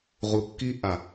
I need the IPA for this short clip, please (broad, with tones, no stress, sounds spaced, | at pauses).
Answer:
ʁ u˨ kː i˧ ʔ a˨